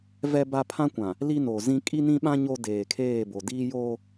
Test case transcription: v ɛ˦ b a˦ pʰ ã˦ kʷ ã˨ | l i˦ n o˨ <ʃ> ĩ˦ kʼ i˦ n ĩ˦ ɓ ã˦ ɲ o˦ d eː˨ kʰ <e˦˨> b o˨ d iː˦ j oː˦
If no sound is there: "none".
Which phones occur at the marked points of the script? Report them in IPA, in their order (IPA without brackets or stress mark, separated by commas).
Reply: z, eː˦˨